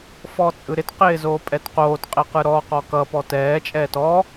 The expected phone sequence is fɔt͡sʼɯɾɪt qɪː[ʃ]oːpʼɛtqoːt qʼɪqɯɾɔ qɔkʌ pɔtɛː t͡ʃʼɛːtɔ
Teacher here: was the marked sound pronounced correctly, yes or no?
no